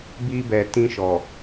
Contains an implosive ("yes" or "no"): no